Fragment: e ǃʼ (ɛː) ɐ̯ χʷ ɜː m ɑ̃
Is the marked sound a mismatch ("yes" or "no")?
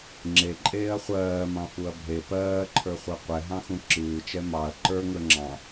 yes